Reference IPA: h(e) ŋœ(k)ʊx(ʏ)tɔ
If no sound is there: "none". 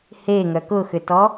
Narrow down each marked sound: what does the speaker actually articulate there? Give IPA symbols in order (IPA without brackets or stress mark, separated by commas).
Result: e, k, ʏ